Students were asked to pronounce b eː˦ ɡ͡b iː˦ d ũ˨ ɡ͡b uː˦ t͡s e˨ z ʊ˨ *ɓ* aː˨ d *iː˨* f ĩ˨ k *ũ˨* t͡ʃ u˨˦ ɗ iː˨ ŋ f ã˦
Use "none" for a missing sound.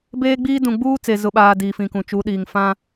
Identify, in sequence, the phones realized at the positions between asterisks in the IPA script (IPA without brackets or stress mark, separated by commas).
ɓ, iː˨, ũ˨